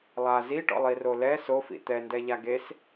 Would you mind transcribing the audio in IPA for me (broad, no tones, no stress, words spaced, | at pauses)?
lˠa ziʈɔ̰lˠiro lɛ sofḭ t̪ɛ ndɛʎaɡes